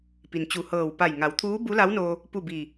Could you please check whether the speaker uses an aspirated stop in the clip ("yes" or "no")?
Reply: yes